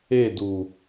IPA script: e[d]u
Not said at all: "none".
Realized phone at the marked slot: d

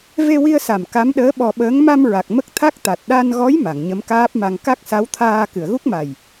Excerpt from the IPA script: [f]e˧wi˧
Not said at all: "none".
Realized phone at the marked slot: v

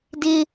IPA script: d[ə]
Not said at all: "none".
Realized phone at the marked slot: ɪ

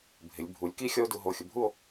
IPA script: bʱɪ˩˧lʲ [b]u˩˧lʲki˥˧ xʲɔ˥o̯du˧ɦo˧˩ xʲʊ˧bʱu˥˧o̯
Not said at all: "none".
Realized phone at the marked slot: bʱ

